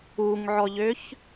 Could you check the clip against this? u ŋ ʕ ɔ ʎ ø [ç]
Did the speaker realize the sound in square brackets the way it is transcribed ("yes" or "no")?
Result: yes